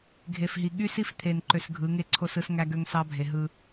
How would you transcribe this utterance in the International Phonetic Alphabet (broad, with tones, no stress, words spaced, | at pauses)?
ɡʱe˨fɦi˨ ɠy˦si˦ft̪ʰe˨nǃø˨s ɡʱɯ˨˦ŋe˦ǀʰo˦sɯ˦s ŋæ˦ɡø˦ŋsɑ˦bʱe˨ ɦɯ˦